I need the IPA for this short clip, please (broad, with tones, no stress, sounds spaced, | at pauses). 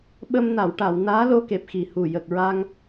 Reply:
ɓ ə˧ m n a˨˩˨ w ʈ a˨˩˨ w n aː˧˥ l o˧ k e˨˩ p̚ x i˨˩ h u˨˩ j ə˨˩ k̚ ɹ a˧ ŋ